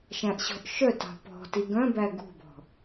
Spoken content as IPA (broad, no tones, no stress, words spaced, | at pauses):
ʃæ̃ʔɕɔ̤ʔʃœtɑ̤ pɔ̤ti ɡœ̃bæ ɡṳbɔ̤